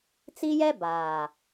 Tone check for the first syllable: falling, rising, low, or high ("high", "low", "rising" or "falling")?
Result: high